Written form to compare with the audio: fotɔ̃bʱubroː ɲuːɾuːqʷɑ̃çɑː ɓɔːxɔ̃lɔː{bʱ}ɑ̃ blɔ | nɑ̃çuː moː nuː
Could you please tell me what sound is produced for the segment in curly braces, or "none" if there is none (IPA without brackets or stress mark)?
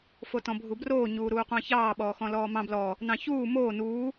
m